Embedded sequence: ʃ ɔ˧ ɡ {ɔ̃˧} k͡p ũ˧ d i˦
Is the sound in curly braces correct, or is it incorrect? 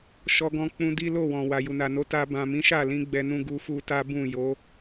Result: correct